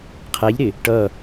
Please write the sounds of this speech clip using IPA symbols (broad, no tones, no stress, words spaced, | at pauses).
qʰæʎɾɪ | ʈʌ